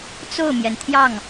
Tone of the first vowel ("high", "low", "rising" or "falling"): falling